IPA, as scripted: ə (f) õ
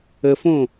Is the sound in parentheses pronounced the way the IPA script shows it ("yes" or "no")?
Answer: yes